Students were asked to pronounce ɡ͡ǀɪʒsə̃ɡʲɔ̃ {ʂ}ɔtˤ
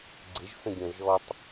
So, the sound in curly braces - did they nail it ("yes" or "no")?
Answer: no